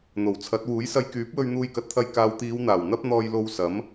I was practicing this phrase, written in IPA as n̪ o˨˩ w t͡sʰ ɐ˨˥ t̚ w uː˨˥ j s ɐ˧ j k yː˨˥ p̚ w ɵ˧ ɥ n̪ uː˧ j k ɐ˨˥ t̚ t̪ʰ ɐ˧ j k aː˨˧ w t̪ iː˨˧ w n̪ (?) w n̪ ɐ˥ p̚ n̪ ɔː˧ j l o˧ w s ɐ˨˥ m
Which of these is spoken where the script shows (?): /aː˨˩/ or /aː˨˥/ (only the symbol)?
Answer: aː˨˩